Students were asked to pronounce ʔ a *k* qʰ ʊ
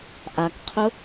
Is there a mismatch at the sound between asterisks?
no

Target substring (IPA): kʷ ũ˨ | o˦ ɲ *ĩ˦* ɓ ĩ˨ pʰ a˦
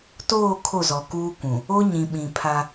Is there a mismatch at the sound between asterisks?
yes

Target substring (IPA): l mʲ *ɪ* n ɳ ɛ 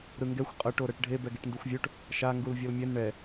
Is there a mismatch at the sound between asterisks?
yes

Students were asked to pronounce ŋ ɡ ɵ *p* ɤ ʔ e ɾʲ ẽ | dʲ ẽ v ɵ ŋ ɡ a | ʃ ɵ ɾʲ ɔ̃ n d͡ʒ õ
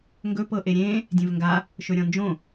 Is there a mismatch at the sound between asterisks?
no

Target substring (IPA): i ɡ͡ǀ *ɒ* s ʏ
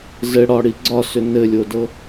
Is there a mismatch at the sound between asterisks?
no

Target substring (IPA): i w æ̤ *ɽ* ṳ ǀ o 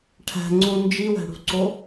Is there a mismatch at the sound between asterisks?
no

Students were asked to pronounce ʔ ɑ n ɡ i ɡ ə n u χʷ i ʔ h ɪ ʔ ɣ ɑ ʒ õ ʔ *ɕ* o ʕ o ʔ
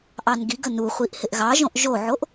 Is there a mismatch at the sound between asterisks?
yes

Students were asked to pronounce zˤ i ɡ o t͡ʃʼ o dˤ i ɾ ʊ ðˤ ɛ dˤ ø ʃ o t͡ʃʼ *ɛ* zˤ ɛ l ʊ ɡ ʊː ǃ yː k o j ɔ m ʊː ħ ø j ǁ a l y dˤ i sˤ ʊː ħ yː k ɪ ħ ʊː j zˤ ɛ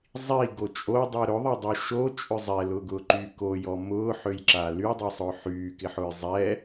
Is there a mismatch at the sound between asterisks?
yes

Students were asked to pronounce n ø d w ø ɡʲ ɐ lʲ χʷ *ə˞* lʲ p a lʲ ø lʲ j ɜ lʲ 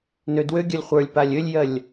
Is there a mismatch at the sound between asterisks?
no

